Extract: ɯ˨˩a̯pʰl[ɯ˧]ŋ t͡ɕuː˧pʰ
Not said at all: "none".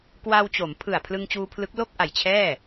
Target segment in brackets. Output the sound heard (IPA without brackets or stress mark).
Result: ɯ˧